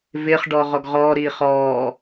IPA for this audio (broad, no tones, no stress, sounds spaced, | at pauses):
v ɪː χ ɖ ɔː ʁ ɔ ɡ ʁ ɔː ɾ iː χ ɔː